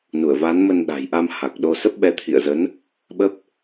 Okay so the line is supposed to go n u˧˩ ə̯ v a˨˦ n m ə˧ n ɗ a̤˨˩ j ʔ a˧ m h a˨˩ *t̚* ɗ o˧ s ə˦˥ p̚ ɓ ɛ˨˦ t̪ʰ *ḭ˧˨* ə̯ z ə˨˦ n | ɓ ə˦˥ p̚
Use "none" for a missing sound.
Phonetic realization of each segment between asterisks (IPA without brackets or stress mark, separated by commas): k̚, ḭ˧˨